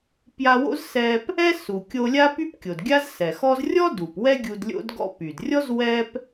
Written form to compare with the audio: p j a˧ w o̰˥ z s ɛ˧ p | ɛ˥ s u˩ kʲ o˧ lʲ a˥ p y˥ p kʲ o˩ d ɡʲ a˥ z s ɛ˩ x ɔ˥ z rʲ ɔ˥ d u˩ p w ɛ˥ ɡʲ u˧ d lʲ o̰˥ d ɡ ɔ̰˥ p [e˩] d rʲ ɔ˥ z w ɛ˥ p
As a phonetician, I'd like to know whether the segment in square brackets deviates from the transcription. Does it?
yes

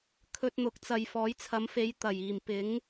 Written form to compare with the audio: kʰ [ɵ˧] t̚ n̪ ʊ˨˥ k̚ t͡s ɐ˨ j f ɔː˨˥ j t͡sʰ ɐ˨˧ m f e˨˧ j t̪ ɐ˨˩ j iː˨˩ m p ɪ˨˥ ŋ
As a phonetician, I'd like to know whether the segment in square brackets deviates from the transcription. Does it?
no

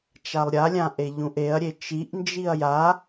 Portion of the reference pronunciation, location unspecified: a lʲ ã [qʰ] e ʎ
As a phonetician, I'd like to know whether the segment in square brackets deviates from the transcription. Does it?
yes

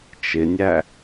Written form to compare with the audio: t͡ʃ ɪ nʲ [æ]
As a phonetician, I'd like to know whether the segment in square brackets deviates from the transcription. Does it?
no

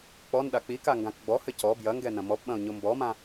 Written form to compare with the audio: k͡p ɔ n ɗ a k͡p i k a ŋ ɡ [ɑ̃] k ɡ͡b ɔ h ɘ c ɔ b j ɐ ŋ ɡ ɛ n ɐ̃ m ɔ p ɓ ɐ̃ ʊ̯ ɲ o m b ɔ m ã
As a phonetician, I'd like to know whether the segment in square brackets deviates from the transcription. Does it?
yes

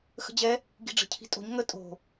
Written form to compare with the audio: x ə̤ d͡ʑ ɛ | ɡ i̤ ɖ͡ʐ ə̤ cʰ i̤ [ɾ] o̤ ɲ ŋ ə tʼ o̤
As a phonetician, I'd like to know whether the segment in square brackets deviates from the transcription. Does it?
yes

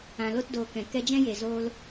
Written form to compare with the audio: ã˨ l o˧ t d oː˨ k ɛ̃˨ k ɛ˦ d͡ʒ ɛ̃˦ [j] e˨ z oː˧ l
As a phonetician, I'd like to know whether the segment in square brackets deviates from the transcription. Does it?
no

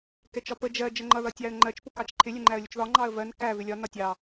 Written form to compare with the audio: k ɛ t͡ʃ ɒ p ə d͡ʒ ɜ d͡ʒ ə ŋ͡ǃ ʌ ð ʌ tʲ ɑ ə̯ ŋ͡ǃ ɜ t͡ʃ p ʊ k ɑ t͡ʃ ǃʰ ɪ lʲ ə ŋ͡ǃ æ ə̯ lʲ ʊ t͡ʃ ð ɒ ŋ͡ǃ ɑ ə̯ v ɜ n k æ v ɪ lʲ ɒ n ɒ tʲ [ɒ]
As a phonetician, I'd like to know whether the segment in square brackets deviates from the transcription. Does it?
yes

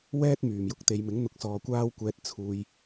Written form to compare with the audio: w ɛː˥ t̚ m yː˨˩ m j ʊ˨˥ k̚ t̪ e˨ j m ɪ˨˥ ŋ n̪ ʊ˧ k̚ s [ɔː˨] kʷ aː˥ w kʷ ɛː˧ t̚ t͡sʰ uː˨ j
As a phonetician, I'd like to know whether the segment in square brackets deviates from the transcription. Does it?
no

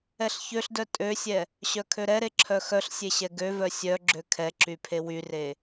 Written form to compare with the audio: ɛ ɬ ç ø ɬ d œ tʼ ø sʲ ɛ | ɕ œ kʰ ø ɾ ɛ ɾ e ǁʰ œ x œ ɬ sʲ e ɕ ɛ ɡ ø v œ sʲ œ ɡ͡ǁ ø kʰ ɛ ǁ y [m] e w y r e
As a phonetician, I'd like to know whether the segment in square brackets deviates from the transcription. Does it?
yes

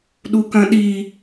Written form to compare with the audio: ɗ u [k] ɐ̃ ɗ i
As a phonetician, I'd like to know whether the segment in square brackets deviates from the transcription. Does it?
no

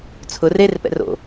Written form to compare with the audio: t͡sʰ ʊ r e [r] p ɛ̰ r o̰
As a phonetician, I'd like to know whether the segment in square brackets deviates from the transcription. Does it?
no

